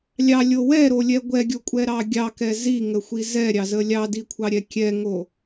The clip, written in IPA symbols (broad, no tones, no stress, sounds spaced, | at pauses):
lʲ ɑ lʲ o w ɛ ɾ o lʲ ɛ ɡʷ ɛ ɡʲ o kʷʼ ɛ ɾ ɑ ɡʲ ɑ k ɛ z i ŋ ə xʷ i z ɛ ɾʲ ɑ z ə lʲ ɑ d i kʷʰ ɑ ɾʲ ɛ kʲ ɛ ŋ o